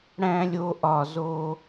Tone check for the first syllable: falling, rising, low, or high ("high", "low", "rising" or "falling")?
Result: high